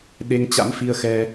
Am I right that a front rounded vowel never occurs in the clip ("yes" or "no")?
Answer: yes